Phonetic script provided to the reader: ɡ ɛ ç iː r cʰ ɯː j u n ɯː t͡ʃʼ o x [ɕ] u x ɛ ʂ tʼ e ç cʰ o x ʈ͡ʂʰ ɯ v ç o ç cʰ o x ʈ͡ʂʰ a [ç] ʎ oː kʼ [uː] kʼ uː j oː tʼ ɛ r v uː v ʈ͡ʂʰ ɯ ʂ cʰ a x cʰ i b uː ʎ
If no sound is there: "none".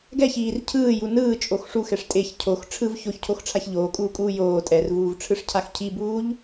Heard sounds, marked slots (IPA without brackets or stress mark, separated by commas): ʂ, ç, uː